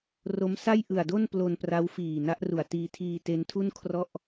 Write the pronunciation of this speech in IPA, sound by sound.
r o˦˥ m s a˥˩ j ʔ ɯ˨˩ a̯ d o˥˩ n p l o˧ n p r a˦˥ w f iː˨˩ n a˦˥ ʔ r u˨˩ a̯ t iː˧ tʰ iː˧ t e˦˥ n tʰ u˥˩ n kʰ r ɔ˥˩ ʔ

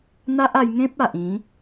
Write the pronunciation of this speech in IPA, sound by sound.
n̪ a˦ ʔ a˧ j ŋ ẽ˦ p̚ a˨ ʔ ĩ˨˦

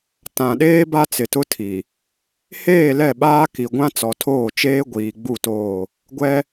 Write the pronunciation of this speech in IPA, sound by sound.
t ã˨ ɗ eː˦ b a˦ t͡s ɪ˨ t ʊ˦ tʰ i˨ | h eː˦˨ l ɛ˦˨ ɓ aː˦ k i˨ ɡʷ ã˦ t͡s ɔ˨ tʰ oː˦˨ t͡ʃ eː˦ ɡʷ iː˨ ɡ͡b u˦˨ t oː˦˨ | ɡʷ ɛ˦

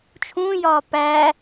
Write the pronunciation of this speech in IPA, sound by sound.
t͡ʃʰ ũ j ɒː p æ

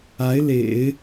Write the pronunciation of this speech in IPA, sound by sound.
a˧˥ ɪ̯ l ḛ˨˩˦ ɪ̯

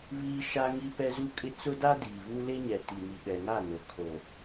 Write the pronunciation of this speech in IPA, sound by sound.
β iː˦ ʃ a˦ ŋ i˦ p ɛ˦ z u˦ kʼ ɪ˦ t͡s ʊ˦ d a˦ d iː˨ β u˦ l e˦ ɲ ɛ˨ t i˨ n i˨ ɓ ɛ˨ ŋ a˦˨ n o˨ kʰ o˨

